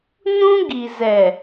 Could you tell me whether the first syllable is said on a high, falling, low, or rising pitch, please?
high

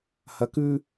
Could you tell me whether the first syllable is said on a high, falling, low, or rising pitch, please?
rising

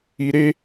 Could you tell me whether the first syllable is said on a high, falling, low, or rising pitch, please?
low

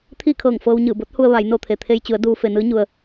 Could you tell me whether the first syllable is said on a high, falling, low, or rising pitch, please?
falling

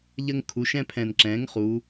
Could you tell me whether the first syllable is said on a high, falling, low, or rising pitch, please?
high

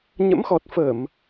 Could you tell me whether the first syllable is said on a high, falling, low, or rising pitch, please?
rising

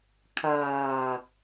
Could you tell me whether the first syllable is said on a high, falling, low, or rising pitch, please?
low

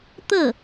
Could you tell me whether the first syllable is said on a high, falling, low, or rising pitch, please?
falling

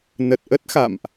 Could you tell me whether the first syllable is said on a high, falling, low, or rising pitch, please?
low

